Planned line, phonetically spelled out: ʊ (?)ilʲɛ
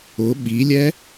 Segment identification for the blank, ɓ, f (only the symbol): ɓ